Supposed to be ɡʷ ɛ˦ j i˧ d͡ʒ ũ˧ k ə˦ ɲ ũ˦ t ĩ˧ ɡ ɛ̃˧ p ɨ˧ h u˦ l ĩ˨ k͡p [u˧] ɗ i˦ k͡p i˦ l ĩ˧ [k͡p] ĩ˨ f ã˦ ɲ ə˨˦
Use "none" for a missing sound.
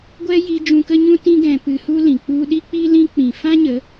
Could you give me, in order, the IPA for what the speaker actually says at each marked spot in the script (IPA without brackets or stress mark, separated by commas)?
u˧, k͡p